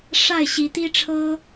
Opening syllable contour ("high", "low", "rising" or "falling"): falling